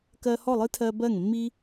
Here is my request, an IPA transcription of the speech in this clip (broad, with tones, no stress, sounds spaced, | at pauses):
k ɜ˧ h ɔ˦˨ lˠ ɨ˦ tʰ ɜ˧ b ɜ˦˨ ŋ mː i˦